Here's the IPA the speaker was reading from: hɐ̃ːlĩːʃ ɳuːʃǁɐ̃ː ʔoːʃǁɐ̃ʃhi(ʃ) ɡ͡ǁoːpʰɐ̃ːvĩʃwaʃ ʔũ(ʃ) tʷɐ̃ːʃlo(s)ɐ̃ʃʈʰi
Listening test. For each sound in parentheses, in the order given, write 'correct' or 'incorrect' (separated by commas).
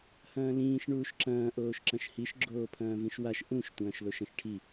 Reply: correct, correct, incorrect